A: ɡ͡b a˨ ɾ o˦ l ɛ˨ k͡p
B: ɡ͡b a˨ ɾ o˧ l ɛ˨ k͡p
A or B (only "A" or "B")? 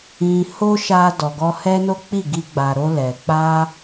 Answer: B